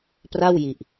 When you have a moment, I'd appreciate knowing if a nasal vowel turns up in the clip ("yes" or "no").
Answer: no